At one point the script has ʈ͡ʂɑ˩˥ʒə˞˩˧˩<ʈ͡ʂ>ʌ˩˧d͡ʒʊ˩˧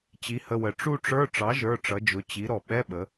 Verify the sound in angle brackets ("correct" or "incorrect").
correct